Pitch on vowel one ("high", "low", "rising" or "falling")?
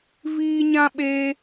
high